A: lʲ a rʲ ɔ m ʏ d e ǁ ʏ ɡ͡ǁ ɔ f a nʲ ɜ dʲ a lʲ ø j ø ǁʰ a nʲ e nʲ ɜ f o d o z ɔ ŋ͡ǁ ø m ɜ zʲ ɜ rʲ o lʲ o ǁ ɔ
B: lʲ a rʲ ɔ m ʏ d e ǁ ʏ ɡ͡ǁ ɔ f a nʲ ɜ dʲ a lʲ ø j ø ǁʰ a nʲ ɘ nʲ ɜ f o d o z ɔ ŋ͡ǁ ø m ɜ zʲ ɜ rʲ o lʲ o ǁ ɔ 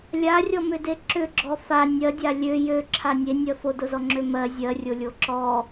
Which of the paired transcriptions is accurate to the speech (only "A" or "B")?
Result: A